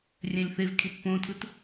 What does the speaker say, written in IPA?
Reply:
rʲ ɛ̃ lʲ θ e v kʰ i t p õ tʰ ɯ t

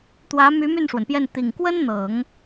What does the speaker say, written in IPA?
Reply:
t̪ w ä˧˥ m y˧˥ m y˥˩ n ʂ w ə˩ n p j ɛ˥˩ n t̪ i˨˩ ŋ k w ə˥ n n̪ ɤ˨˩˦ ŋ

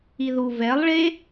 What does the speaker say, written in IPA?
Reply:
i ð u v ɛ lˠ ɭ e

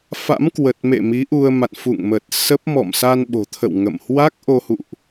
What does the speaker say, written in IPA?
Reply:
f a̰˧˥ m k w ə˨˩ t̚ m ḛ˧˨ m i˨˦ ʔ u˧ ə̯ m a̰˧˨ n f ṵ˧˨ ŋ m ə˨˩ t̚ s ə˦˥ p̚ m ɔ̰˧˨ m s a˧ n ɓ o̤˨˩ t̪ʰ ə̰˧˨ w ŋ ə̰˧˨ m h w a˦˥ k̚ ʔ o˧ h ṵ˧˨ ʔ

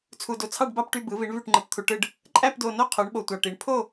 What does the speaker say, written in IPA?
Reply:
t͡sʰ u˧ d o˧ t͡sʰ ɑ˥˧ ɖ b ɑ˥˧ p ʈ y˥˧ b ɯ˨˥ v i˨˥ ɳ v y˥˧ ʈ ŋ͡ǃ ɯ˧ p t̪ʰ u˧ ʈ ɯ˥˧ ɖ | ǃʼ æ˥˧ p d o˧ n o˥˧ qʰ u˨˥ ɳ ɓ o˧ tʷ ɑ˧ ʈ i˨˥ ɳ pʰ o˥˧

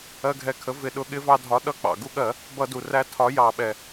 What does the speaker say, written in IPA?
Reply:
ɜ˧ ɡʱ ɛ˨˥ kʰ ə˨˥ v ɪ˧˩˧ ɗ ʊ˨˥ ɠ ɪ˨˥ v ɑ˧ dʱ ɒ˨˥ ɗ ʌ˧ k͡p ɑ̰˩ ɡ u˧ ɠ ɜ˧˩˧ | b ʌ˧˩˧ d u˩ r æ˧ tʰ ɒ˨˥ j ɑ˧˩˧ ɓ ɛ˩

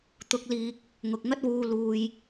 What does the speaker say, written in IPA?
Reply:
t̪ ʊ˧ k̚ l iː˧ k̚ | ŋ ʊ˨ k̚ ŋ ɐ˥ t̚ w uː˧ l uː˧ j

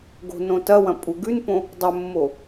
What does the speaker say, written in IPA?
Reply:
ɡ o̤ n õ t ɐ w ɐ̃ pʼ u ɡ ʉ n p õ | dˤ ɵ mː o

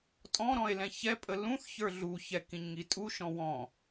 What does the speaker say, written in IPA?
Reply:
tʼ ɔ̃ ɾ ɔ̃ e̯ l ɛ̃ ç ɛ pʼ ə l ũ θ ç ə˞ ɮ u ç ɛ k ĩ ɲ ŋ i tʼ u ʃ ɔ̃ w ɔ̃

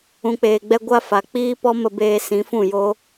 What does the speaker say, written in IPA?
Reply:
ũ˨ k͡p eː˨ ɡ͡b ɛ˧ ɡʷ a˦ f a˨ k͡p iː˦ p ɔ˦ m ə˧ b eː˧ s ĩ˨˦ f ũ˦˨ j o˦

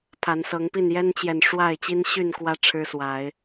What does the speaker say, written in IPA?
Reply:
pʰ a˨˦ n s ɤ˨˦ ŋ p i˥˨ n j ɛ˦ n t͡ɕ j ɛ˨ n ʂ w a˥˨ ɪ̯ t͡ɕ i˦ n ɕ y˥˨ n k w ä˦ ʈ͡ʂʰ ɻ̩˦ s w a˨˦ ɪ̯

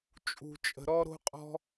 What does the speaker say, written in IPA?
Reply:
t͡ʃʼ ṳ˨ t͡ʃʼ ə̤˨ ɾ ɔ˦ ɾ o̤˦ qʼ ɔ̤˦

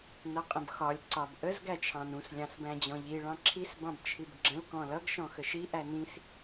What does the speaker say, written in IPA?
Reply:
n ʌ qʼ ə̃ b x ɒ lʲ ǀ ɒ b ʔ ə z ɡ æ t͡ʃʰ ɑ̃ n ũ s lʲ ɑ̃ s b æ̃ d͡ʑ ɔ̃ ʎ i ɭ ɑ̃ ǁʰ i s b ɑ̃ b t͡ʃʰ i b ɡ͡ǁ ə̃ l k ɔ̃ l ʌ ɡ ʃ ɔ̃ x ə ʃ i ʔ æ n ĩ s

